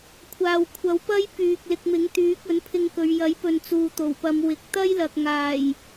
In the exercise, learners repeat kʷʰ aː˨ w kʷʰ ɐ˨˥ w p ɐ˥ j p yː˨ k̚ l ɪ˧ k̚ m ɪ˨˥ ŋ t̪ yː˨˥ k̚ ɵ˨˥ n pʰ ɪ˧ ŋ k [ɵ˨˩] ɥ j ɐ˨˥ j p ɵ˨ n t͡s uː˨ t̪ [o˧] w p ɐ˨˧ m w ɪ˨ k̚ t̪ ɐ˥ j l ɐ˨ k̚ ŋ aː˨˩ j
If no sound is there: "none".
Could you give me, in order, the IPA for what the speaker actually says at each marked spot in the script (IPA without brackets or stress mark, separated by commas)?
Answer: ɵ˨˧, o˨˩